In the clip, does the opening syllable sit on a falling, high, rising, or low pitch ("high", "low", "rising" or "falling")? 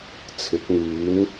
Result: rising